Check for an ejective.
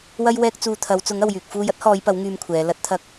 absent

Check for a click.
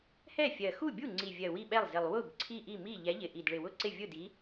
present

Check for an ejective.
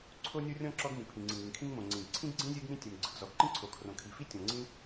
absent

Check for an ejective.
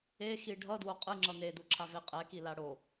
present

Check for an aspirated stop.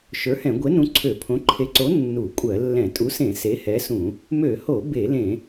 present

